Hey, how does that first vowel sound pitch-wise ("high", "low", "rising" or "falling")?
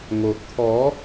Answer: low